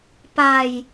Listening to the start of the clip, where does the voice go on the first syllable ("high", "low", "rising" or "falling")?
low